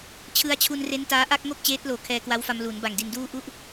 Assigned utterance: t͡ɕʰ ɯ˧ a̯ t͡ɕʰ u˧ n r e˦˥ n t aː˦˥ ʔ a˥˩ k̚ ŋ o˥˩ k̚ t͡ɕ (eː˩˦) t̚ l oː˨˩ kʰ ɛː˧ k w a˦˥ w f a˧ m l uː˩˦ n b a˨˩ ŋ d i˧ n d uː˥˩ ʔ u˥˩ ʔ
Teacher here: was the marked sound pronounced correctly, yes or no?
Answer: no